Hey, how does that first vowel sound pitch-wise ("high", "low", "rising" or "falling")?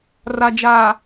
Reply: low